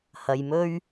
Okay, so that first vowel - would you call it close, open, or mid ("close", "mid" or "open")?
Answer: open